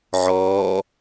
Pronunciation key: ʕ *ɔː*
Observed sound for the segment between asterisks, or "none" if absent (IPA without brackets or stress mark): ɔː